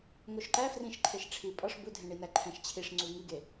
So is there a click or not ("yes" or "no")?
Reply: yes